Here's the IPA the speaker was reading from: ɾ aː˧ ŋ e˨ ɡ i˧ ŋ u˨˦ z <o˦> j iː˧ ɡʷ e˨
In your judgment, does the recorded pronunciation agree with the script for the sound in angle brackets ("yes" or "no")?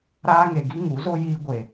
yes